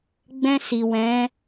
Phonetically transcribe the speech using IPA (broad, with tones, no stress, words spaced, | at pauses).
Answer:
ɡ͡bɛ̃˧si˨wɛ̃˨˦